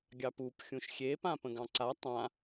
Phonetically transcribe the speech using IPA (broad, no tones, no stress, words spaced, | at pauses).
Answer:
ɡʲɑpup xʲũʃxʲe pãpə̃ɡɑ̃ǀa tˤã